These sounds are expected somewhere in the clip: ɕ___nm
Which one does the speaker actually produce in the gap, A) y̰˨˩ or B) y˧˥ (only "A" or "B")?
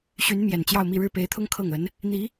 B